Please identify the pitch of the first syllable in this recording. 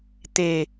falling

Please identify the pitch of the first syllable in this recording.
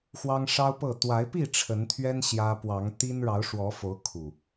high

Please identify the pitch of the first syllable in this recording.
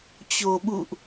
low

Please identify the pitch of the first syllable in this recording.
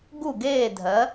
falling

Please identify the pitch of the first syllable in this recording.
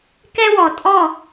high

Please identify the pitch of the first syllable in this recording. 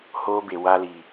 high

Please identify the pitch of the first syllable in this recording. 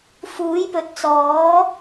rising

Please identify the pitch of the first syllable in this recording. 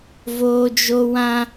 high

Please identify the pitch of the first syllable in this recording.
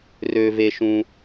low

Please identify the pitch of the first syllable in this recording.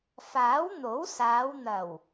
rising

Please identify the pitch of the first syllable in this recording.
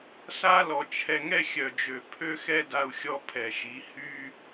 high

